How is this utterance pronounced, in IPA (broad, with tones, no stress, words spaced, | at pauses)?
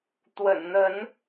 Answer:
t̪wə̰˨˩nn̪ə˨˦n